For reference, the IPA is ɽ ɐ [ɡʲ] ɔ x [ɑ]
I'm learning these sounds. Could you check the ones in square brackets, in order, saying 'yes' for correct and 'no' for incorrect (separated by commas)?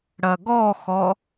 no, no